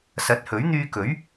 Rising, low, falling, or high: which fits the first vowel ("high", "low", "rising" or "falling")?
rising